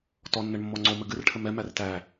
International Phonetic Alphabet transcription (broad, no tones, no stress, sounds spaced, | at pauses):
t ɔ nː ɘ ɳ mː ɔ ŋ͡ǀ o m ɘ ɡ ɨ r ʈʰ ɘ m ɛ m æ r t æ